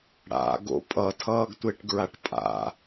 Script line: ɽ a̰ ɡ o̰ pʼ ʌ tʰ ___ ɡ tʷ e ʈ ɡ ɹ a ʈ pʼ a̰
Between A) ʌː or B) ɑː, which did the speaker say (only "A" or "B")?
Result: A